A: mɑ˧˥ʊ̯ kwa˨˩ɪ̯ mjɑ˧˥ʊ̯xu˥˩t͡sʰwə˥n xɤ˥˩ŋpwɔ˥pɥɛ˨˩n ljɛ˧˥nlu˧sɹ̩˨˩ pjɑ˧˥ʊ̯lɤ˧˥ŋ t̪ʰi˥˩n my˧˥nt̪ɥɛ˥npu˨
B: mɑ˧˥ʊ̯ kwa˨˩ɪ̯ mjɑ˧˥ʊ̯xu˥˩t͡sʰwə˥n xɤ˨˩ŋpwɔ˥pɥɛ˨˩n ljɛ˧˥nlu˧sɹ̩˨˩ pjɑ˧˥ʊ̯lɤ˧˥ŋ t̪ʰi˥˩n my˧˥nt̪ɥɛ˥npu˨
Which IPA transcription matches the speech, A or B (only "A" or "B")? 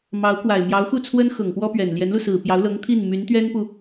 B